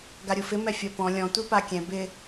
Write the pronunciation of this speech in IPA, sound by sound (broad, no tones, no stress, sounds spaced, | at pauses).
ɡ a ɾʲ u f ɪ m ɛ fʲ ɔ p ɔ̃ lʲ ɔ̃ tʷ i p a kʲ ɛ̃ b ɪ